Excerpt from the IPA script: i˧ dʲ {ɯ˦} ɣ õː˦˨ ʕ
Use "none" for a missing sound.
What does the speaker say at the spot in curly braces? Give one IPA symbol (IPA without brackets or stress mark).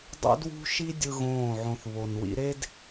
ɯ˦